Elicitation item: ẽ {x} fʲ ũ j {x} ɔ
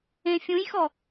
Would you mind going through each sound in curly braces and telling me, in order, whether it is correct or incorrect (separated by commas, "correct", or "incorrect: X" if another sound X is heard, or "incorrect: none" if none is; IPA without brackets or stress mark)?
incorrect: none, correct